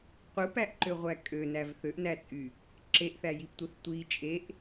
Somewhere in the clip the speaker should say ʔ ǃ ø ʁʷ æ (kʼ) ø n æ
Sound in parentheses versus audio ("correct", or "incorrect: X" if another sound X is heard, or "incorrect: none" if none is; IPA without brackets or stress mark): correct